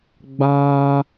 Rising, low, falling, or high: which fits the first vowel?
high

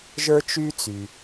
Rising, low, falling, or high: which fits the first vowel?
high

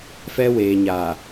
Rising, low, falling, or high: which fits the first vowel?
high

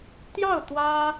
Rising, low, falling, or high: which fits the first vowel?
falling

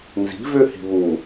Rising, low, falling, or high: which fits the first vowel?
rising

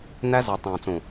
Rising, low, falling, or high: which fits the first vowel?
high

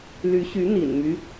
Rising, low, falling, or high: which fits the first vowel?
rising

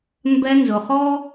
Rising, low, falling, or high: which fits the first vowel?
high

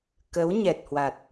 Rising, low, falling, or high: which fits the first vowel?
rising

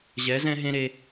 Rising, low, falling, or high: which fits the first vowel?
rising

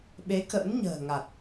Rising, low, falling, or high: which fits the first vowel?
rising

